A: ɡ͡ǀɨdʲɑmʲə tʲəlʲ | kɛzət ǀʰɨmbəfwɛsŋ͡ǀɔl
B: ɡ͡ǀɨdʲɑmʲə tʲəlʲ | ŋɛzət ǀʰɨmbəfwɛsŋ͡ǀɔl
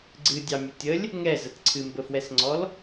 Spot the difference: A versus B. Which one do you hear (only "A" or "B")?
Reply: B